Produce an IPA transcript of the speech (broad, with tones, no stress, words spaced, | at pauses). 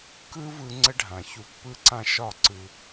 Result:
kɯ˦vɯ˧ ŋ͡ǀə˦ɖʱã˨çu˧ pːɯ˧ǀã˧ ʃɒ˦˨ ǀɯ˧